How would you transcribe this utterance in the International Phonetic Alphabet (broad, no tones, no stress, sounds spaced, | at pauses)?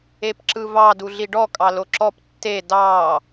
e p ǁ ɯ v ɑ d u ɮ i ɖ ɔ kʼ ɑ l o ǁ ɔ p tː e d ɑ